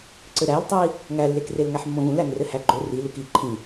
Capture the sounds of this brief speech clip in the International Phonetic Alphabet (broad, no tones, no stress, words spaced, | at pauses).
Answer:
ǀɘɾæltˤæi̯ | ŋælːekrel ŋæħmːõɣũl æŋrɘhæɡ͡ǃo riluk i ǃʰĩ